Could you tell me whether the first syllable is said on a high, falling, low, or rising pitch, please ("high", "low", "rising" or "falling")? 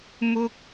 high